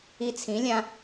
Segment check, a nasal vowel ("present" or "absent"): present